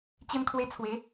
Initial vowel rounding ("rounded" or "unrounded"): unrounded